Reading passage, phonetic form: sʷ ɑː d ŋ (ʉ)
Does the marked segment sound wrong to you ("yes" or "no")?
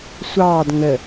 yes